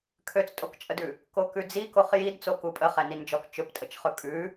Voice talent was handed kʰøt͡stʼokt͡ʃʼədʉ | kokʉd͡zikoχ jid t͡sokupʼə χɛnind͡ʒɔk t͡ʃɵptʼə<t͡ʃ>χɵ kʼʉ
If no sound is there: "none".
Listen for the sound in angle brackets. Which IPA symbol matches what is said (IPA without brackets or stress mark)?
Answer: t͡ʃ